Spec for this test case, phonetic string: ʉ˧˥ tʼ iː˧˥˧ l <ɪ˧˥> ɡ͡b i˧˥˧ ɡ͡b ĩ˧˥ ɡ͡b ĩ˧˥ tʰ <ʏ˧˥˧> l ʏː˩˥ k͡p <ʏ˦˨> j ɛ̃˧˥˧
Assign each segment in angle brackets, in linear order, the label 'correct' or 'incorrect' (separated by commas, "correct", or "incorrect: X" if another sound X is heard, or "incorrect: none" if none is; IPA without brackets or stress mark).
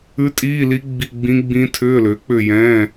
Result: incorrect: i˧˥, incorrect: ʏː˧˥˧, correct